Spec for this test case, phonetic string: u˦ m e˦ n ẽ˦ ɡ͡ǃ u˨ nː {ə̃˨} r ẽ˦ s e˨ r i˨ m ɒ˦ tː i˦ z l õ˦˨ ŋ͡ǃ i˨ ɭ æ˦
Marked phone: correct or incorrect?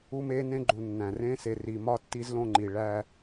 incorrect